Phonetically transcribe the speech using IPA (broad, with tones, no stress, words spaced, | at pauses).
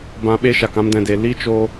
bã˧ɓe˦ʃa˨k ã˧mdɛ̃˨de˨ li˦ t͡ʃoː˦